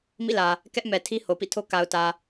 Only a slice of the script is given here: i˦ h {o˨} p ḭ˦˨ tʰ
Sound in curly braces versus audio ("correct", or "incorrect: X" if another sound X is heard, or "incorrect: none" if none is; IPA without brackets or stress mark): correct